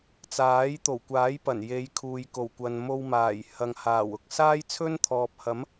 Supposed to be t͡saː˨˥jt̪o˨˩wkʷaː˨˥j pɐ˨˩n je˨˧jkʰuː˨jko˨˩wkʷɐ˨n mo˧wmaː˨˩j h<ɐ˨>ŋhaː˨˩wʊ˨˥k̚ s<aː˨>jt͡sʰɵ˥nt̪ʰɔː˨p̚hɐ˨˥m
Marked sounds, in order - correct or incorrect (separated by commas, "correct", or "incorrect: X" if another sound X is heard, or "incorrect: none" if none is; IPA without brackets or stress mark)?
correct, incorrect: aː˥